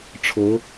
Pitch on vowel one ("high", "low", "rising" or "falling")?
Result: rising